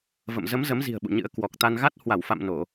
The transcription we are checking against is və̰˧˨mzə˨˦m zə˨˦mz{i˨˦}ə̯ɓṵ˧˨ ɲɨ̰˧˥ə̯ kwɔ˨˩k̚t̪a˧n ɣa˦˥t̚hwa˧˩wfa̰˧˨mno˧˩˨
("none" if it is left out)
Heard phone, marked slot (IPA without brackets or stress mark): i̤˨˩